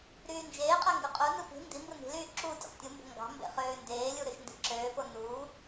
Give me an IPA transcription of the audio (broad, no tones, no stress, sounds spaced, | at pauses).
ɾ yː n d͡ʒ eː qʼ æ ŋ ɡ u qʼ u n ɯ p i̤ n d i m b ɯ n i̤ l yː ǁ uː tʲ ḛ q tʲ u m b o̤ ŋ ɡ ɑ̤ m b ḛ χ øː n d eː lʲ u ɾ ø ʃ n d i̤ ǁ øː p o n uː